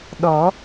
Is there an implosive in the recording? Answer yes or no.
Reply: yes